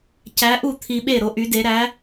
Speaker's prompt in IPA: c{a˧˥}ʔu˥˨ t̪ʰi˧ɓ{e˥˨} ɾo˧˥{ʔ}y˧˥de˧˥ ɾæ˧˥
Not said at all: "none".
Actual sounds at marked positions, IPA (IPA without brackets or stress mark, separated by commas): æ˧˥, e˥˨, ʔ